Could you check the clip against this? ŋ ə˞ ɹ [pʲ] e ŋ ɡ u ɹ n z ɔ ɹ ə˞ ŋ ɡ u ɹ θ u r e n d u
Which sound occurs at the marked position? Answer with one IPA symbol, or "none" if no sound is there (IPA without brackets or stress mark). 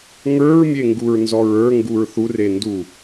mʲ